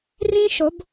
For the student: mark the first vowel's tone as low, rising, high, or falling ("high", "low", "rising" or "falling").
high